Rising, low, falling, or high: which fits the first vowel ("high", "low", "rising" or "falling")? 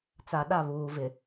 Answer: low